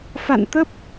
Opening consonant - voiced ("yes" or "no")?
no